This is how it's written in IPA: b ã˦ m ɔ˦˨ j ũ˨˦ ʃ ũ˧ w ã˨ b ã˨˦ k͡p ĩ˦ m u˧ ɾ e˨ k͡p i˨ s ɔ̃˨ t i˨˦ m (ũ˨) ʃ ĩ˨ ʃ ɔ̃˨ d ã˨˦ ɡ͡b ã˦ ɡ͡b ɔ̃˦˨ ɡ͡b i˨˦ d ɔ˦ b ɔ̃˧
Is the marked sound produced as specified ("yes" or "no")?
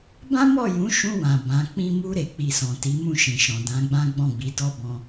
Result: no